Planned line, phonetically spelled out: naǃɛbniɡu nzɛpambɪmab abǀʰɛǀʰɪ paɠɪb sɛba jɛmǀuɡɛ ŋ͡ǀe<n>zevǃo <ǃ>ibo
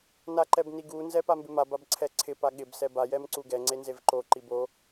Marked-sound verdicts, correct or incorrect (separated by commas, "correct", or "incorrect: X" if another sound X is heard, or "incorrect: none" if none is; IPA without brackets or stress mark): correct, correct